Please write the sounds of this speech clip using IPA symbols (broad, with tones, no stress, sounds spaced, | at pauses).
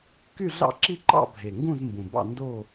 k y˦˨ ɮ ɑ̰˦˨ ǁ i˦˨ ǃ ɑ̰˦˨ bʱ e˨˩ ŋ ɡ ũ˦˨ z m b ũ˨˩ b ɑ̰˦˨ n d o˦˨